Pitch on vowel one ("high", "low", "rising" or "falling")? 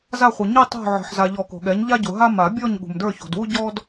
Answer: falling